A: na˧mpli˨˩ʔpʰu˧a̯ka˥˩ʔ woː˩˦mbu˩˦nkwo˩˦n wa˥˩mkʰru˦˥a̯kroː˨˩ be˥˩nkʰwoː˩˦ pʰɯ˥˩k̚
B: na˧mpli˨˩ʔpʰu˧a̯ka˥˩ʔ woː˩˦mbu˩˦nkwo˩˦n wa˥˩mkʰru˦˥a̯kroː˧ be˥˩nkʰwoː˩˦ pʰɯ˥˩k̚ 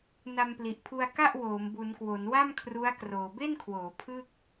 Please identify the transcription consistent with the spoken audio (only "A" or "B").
A